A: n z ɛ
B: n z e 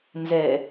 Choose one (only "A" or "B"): A